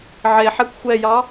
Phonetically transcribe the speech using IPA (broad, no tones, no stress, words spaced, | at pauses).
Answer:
ʕeħɛkʷ xʷɛjɑ